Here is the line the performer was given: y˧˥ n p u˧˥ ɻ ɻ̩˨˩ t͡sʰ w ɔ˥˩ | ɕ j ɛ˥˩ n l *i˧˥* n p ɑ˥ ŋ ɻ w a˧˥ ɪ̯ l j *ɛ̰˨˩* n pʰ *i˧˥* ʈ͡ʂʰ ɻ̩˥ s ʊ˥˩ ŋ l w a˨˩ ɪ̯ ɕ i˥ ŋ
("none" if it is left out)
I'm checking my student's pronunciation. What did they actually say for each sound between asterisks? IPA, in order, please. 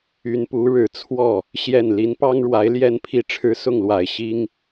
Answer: i˧˥, ɛ˥, i˥˩

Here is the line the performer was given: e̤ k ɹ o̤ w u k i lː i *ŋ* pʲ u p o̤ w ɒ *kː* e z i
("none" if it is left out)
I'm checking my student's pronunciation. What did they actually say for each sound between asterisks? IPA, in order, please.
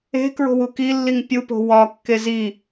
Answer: ŋ, kː

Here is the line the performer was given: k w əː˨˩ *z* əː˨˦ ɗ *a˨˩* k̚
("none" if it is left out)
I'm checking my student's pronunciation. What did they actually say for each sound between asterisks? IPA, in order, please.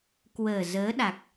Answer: z, a˨˩

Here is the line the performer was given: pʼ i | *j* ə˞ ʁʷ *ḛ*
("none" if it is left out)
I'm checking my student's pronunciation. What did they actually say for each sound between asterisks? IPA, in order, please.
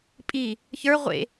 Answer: ç, ḛ

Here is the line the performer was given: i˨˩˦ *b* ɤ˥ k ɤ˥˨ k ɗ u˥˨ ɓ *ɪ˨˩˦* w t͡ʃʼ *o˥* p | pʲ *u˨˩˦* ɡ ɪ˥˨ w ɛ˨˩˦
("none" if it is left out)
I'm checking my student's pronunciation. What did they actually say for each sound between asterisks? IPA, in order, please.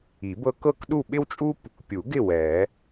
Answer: b, ɪ˥, u˥, u˨˩˦

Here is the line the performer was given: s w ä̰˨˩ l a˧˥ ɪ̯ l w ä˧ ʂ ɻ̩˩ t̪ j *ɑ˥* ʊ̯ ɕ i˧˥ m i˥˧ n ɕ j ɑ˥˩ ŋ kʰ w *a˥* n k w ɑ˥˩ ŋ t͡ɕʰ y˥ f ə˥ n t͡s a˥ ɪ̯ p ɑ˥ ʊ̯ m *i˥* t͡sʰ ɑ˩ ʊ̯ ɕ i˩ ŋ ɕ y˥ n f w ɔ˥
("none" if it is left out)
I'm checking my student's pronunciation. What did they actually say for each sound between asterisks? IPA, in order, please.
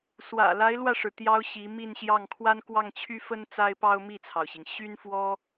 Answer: ɑ˥, a˥, i˥˩

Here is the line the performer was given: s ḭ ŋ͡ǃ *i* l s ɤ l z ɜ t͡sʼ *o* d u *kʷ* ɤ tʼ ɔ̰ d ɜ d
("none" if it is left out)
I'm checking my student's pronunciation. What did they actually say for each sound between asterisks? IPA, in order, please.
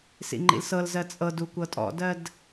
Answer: ḭ, ɤ, kʷ

